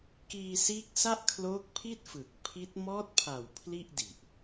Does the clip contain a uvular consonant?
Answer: no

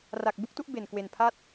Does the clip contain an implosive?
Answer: no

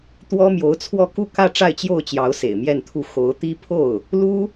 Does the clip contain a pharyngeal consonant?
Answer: no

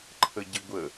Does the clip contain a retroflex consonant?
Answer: no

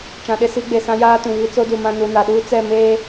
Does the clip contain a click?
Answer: no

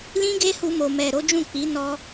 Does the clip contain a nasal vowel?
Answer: yes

